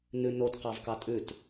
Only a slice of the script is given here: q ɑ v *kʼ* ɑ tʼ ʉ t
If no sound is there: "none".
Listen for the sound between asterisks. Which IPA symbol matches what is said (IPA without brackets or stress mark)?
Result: k